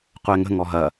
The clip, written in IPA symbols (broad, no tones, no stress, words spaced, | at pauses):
qʷɛŋə̤ ŋɔɦɐ